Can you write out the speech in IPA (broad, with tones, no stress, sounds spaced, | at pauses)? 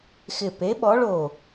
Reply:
x ɪ˧˩ p e˨˥ ɓ ɔ˨˥ ɭ o˧˩